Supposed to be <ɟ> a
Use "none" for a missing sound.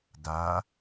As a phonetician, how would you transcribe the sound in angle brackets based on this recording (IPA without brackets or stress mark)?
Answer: d